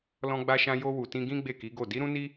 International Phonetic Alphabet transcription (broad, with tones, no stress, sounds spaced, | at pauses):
l ɔ̃˧ ɡ͡b a˧ ʃ ã˧ j o˧ w u˨ t ĩ˧ ɡ ĩ˦ ɡ͡b e˦˨ k i˨˦ ɡ o˦˨ d i˨˦ ɾ ũ˦ n i˦